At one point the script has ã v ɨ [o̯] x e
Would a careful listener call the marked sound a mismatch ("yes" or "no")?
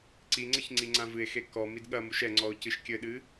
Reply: yes